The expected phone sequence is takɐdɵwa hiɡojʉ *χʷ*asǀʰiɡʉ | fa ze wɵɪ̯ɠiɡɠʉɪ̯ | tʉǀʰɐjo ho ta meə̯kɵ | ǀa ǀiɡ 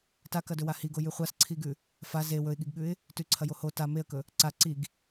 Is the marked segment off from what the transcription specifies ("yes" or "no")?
no